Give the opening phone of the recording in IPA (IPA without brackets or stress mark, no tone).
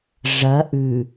ʐ